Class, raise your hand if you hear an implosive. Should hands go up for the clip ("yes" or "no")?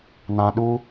yes